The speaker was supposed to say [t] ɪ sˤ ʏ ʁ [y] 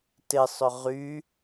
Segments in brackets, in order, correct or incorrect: correct, correct

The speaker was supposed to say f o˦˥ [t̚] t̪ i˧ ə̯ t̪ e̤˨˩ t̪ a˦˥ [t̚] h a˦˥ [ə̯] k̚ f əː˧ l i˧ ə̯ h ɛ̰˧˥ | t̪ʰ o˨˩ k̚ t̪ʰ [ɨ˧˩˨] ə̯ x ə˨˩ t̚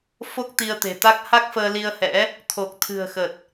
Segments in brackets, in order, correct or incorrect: incorrect: k̚, incorrect: k̚, incorrect: none, incorrect: ɨ̤˨˩

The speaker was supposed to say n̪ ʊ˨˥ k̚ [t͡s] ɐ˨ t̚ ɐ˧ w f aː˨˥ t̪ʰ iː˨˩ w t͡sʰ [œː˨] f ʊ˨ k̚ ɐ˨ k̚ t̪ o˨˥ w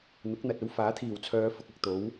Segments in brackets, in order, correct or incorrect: incorrect: n̪, incorrect: œː˨˧

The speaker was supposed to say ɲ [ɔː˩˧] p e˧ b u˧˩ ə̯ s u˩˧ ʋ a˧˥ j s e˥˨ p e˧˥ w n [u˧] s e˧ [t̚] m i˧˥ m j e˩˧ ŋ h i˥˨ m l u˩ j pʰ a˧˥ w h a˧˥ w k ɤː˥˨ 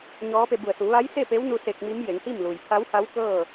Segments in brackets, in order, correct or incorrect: incorrect: ɔː˧˥, correct, incorrect: k̚

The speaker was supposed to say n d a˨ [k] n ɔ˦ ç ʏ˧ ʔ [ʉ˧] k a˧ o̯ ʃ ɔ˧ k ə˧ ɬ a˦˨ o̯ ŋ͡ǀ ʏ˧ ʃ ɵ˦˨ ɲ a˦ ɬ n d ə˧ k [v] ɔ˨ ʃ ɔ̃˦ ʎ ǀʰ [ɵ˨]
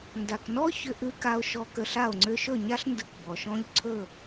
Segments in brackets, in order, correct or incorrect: correct, correct, incorrect: b, incorrect: ɵ˦˨

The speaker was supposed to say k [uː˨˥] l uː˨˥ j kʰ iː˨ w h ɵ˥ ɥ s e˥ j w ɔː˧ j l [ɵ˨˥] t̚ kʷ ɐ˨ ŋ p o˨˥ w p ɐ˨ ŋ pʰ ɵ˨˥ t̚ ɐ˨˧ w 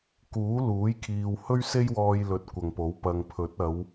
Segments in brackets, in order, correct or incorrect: correct, correct

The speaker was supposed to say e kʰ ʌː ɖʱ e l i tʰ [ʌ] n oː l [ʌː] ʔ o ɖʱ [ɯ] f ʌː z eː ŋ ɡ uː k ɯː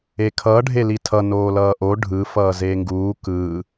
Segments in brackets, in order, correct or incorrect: correct, correct, correct

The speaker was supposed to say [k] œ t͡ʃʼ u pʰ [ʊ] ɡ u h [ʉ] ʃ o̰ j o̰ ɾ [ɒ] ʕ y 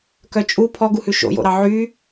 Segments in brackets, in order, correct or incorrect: correct, incorrect: ɔ, correct, incorrect: ɑ

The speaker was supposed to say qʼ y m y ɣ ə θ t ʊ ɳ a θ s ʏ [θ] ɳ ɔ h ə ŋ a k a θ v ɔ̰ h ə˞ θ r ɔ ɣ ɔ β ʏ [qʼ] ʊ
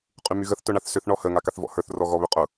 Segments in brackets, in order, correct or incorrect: correct, correct

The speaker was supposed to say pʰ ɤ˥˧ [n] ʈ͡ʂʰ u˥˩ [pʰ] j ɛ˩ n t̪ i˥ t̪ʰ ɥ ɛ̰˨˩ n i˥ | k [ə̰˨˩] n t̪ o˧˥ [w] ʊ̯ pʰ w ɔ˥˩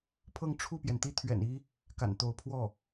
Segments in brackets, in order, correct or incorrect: incorrect: ŋ, incorrect: p, incorrect: a̰˨˩, incorrect: none

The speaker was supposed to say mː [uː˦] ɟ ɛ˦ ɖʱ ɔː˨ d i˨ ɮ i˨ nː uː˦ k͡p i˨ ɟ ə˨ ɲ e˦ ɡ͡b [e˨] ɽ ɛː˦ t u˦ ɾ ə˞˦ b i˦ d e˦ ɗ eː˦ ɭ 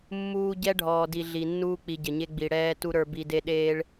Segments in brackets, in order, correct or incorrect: correct, incorrect: i˨

